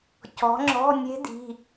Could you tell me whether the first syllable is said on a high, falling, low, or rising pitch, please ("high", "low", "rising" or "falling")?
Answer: rising